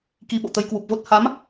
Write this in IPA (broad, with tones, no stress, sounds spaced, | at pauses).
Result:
k i˧ ɓ o̰˧˨ t̪ ə˧ j k w u˨˩ p̚ v o˦˥ t̚ h a˨˦ m